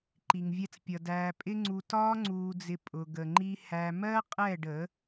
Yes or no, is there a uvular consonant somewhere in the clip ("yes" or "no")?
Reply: yes